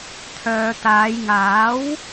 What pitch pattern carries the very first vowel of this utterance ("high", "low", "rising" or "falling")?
low